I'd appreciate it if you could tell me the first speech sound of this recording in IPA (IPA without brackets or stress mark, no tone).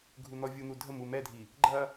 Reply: ɡʱ